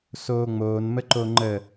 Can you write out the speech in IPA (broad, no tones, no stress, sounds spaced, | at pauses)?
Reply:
s oː ŋ͡m oː n m ə ǃ o ŋ͡ǃ ə